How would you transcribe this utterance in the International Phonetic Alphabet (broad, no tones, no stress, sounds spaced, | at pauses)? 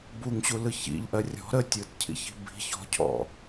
b u ŋ ɕ u l ɯ ç ḭ ʎ ʔ ɜ rʲ ɔ̤ ɾ ə tʲ ɯ t cʰ ḭ ç i̤ b i̤ ç ɔ̤ cʰ ɔ̰